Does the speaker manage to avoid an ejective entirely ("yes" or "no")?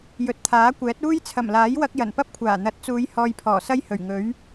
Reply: yes